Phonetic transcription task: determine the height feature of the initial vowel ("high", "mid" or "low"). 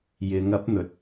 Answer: high